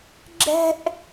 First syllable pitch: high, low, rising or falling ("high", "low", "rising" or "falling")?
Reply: high